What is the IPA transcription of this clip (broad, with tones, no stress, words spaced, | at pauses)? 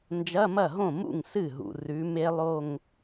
nd͡ʒɐ˧˥˧mɐ˥˩ɦõ˥˩mṵ˥˩ŋ sɨ˥˩ɦṵ˨ rʉ˨˦me˦˥lˠo˥˧ŋ